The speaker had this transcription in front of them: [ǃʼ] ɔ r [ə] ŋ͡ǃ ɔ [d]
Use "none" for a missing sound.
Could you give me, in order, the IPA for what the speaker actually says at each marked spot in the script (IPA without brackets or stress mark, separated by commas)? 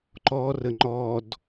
ǃ, ə, d